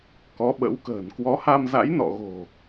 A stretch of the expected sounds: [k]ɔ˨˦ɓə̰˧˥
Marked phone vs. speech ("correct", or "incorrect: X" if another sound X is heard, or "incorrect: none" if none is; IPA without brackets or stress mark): correct